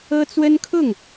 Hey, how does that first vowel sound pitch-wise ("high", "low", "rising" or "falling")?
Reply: high